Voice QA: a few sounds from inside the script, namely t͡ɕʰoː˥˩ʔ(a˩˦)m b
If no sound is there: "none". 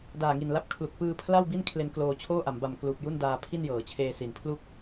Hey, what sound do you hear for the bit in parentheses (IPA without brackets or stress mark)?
a˩˦